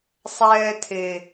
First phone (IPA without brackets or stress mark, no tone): sˤ